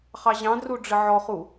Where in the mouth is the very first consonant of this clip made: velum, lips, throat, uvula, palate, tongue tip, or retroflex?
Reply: uvula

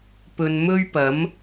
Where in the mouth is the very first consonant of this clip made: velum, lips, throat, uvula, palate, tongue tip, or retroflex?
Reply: lips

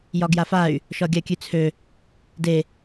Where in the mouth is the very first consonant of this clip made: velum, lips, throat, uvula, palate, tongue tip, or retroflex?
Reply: palate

